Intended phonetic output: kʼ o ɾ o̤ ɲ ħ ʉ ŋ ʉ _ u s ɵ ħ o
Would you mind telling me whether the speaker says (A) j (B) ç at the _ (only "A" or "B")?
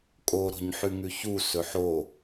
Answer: B